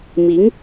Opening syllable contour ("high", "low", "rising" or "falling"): rising